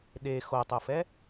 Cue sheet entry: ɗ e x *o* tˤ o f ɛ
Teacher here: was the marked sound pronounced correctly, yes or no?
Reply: yes